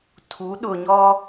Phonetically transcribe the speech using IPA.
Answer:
tʰ u˨˦ ɗ ʊ˨ ɲ ɔ˦

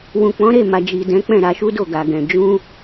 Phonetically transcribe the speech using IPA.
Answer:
w ũ˨ k͡p ɔ̃˨˦ ɾ e˦˨ m a˨ d͡ʒ i˨ d ɛ̃˨˦ k͡p ɛ̃˦˨ ɾ a˧ ʃ u˦ d o˦˨ ɡ a˨ ɡ ɛ̃˨ d͡ʒ ũ˧

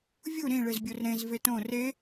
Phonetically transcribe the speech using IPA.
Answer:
vʲ u ɾ ĩ ɭ e z bʲ o r ɾ ẽ z v e t õ r e

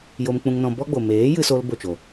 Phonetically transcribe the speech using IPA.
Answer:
j o˧ m k͡p ũ˧ ŋ n ɔ̃˧ b ɔ˦ ɡ͡b o˨ m eː˨˦ j ɨ˧ s o˧ l b o˦˨ t͡ʃ o˨

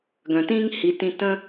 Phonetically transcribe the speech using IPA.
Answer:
ɡ œ̃˩ t ĩː˥ ŋ h i˩˧ t ĩ˧ t ə̃˥

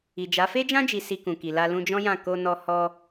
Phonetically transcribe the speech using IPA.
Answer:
i˨ d͡ʒ a˨˦ f e˦ d͡ʒ ã˦ d͡ʒ i˧ s i˧ k ũ˨ k i˨ l a˧ l ũ˧ d͡ʒ ɔ̃˦ j ã˦˨ k o˧ n ɔ˧ h ɔ˧

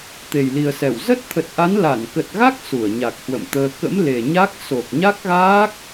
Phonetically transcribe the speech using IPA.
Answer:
t̪ e˨˩ j l i˨˩ ə̯ s ɛ˧˩ w z ə˦˥ t̚ t̪ʰ ə˨˩ t̚ ʔ a˨˦ n l a˧˩ n k ə˨˩ t̚ ɣ a˦˥ k̚ s u˧˩ ə̯ ɲ a˨˩ k̚ h w ə̰˧˨ m t̪ əː˧ k ə̰˧˥ m l e˨˩ ɲ a˦˥ k̚ s o˨˩ k̚ ɲ a˦˥ k̚ ɣ aː˦˥ k̚

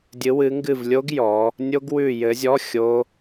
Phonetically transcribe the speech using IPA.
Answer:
dʲ ɨ˨˦ w ɨ˨˦ ŋ ɡ ɨ˦˨ v lʲ o˦˥ ɡ j ɔ˨˦ | nʲ o˦˥ ɡ w ʉ˦˨ j ɘ˨˦ zʲ ɔ˧˥˧ xʲ o˦˥

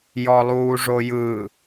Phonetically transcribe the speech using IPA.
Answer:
j ɔ lˠ uː ʐ o j ɯ

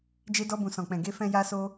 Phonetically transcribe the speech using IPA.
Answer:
d͡ʒ e˧ d ɔ˧ b ũ˨ s ɔ̃˨ k͡p ɛ̃˨ ɡ e˧ f ɛ̃˧ j a˧ s o˧

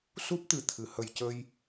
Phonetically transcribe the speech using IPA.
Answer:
s u˦˥ p̚ t̪ ɨ˨˩ t̪ʰ ɨ˨˩˨ h ə˨˩ j c ə˧ j

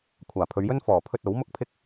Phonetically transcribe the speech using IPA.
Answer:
kʷʰ aː˨˩ pʰ ɵ˨˧ ɥ j ɵ˥ n f ɔː˨˩ pʰ ɵ˧ t̚ o˨˥ w m ʊ˥ k̚ pʰ ɪ˥ k̚

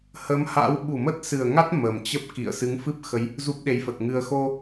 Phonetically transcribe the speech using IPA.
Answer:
h ə˨˦ m h a̰˧˥ w ɓ u˧˩ m ə˦˥ t̚ s ɨ˨˩ ə̯ ŋ a˦˥ t̚ m ə˨˩ m t͡ɕ ə˦˥ p̚ k ḭ˧˨ ə̯ s ɨ˨˦ ŋ f ɨ˦˥ p̚ x ə˨˦ j | z u˦˥ p̚ ɗ e˨˦ j f ə˨˩ t̚ ŋ ɨ˧ ə̯ x o˧

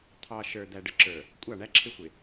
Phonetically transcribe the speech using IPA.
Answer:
t̪ʰ ɑ˨ ʃ ə˞˨ d̪ æ˨ ɖ ə˨ ǁ ə˞˨ | kʷʼ ɑ˦˨ ɳ æ˦ ǁʰ ɪ˦ xʷ ɪ˨

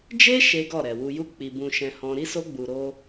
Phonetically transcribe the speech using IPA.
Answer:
d͡ʒ e˦ ʃ e˦ ɡ ɔ˦˨ ɾ ɛ˨ w u˨ j u˧ k͡p i˨ b ũ˧ ʃ ɛ̃˧ h ɔ̃˦ ɾ i˦ s o˦ ɡ͡b u˧ ɾ o˦

